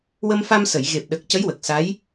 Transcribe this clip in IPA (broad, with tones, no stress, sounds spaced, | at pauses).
w ə˧ m f a˧ m s ə˨˩˨ j ɣ e˨˩ p̚ ɗ ə˨˩ k̚ c ə˧˥ j w ə˨˩ k̚ s a˧˥ j